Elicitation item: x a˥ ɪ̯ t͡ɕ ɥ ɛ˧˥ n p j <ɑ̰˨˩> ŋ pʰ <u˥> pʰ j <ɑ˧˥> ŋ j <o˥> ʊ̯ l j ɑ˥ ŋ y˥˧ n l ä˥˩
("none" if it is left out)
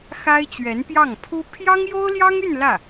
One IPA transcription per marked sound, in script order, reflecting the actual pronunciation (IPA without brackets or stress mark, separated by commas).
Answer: ɑ˥˩, u˥, ɑ˥, o˥